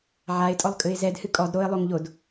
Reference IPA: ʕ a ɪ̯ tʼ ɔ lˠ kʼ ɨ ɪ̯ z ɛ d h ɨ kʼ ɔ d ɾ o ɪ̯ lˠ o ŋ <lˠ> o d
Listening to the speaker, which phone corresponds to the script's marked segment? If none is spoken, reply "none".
ʎ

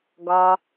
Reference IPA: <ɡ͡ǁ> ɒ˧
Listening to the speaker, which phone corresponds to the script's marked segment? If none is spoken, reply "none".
ɡ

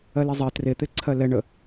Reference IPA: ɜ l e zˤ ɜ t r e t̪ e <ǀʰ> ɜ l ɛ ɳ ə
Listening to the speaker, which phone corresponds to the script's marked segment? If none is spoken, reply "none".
ǀʰ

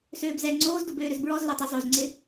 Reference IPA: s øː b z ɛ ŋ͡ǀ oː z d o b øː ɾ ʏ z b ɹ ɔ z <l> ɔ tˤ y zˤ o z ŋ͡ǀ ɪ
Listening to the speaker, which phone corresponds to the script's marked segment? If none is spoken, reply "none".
l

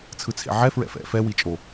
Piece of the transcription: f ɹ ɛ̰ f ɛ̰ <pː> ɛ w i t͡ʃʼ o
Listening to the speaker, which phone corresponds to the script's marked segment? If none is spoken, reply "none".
f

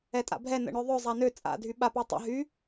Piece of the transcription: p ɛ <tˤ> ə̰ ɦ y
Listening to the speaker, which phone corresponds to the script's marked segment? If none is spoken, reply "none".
tˤ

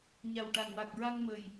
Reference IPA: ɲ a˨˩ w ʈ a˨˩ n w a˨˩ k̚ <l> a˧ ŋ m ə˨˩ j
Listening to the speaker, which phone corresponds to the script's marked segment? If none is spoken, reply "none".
ɹ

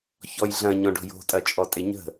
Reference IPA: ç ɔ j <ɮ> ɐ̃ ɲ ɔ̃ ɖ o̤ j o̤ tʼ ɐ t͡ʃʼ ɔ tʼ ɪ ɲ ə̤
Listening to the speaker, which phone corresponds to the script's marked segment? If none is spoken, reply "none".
ɮ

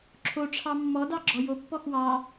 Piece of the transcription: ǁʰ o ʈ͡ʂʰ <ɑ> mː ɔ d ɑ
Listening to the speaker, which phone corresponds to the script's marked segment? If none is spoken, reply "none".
ɑ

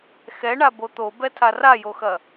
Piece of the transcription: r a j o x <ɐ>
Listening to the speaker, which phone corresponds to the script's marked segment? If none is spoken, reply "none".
ɐ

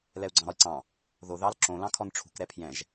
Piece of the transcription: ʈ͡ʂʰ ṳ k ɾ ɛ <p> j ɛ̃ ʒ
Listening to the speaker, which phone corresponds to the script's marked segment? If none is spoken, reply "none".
pʰ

